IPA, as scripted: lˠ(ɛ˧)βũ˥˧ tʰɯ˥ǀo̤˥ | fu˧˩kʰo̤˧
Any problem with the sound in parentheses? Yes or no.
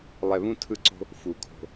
no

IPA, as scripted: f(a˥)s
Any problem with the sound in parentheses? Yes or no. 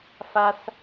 no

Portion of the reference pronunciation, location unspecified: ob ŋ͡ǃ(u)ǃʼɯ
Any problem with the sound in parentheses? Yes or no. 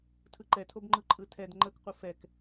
yes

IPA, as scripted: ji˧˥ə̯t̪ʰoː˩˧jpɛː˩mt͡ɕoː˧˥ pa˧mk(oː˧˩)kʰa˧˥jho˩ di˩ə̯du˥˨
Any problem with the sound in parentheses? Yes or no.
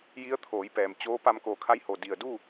no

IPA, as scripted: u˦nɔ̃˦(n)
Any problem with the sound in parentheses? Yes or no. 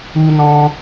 yes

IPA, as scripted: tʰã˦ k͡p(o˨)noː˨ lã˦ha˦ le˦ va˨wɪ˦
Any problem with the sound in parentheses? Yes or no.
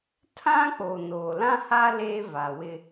no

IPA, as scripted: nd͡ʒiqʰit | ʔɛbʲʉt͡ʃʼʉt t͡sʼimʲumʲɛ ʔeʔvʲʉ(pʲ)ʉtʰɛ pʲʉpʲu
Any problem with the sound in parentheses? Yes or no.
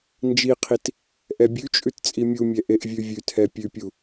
yes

